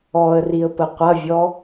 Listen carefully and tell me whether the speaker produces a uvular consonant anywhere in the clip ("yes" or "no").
yes